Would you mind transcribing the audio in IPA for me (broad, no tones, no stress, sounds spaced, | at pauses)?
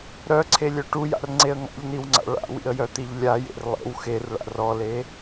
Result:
ɾ œ ǀʰ e lʲ œ ʈ u j a̰ r ŋ͡ǀ e ə̯ ŋ a̰ ʎ n i w ŋ͡ǀ a̰ ɭ a̰ w ḭ ə̯ j œ t̪ i ʎ lʲ a j ḛ r lˠ ḛ w x e r ɭ a̰ r ɔ l e